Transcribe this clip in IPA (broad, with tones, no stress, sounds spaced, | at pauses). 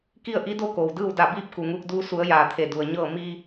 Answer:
k i˥˨ ə̯ ʔ i˧˥ d o˥˨ k oː˩ w d ɯː˥˨ w d a˧˩ b iː˥˨ p̚ k u˩ ŋ uː˧ k̚ d uː˧ s u˩˧ ə̯ j aː˩ t̪ʰ e˩ d u˩ ə̯ ɲ ɤː˥˨ m iː˧